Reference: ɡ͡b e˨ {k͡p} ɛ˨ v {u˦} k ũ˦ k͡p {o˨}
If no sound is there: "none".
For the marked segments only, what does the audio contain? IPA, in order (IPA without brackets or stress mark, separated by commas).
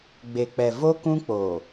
k͡p, o˦, oː˨